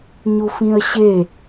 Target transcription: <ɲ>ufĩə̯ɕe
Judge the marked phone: correct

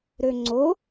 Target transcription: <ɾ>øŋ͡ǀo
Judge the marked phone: correct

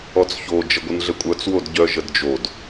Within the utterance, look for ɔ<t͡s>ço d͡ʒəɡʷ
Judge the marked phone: correct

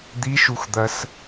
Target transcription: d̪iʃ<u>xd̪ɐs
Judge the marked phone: correct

